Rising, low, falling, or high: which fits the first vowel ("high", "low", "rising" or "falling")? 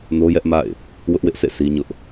high